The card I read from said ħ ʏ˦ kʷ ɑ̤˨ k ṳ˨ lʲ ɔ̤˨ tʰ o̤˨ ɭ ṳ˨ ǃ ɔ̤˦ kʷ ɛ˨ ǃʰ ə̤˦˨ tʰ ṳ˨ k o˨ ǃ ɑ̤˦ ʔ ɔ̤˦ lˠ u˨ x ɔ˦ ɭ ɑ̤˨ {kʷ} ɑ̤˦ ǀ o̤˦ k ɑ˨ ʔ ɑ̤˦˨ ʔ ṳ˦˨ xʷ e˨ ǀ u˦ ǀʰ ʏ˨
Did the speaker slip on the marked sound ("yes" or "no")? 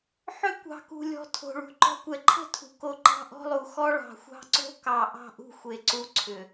yes